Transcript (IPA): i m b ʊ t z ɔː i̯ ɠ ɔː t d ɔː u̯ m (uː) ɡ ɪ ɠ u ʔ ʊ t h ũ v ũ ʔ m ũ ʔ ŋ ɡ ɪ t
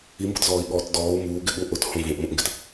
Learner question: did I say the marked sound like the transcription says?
yes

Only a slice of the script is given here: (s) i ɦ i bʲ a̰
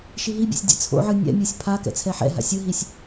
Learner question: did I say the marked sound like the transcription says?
no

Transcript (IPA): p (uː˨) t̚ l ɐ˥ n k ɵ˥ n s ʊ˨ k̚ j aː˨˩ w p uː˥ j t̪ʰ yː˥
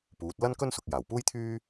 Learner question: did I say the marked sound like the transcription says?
no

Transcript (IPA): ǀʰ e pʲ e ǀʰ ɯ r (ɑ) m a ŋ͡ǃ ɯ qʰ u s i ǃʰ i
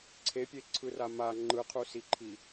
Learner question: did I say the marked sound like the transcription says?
no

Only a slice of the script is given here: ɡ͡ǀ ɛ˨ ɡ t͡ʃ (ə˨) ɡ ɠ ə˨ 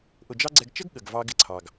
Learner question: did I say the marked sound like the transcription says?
no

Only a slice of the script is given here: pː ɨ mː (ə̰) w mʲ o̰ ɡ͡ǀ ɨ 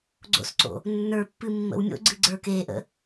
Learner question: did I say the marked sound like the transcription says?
yes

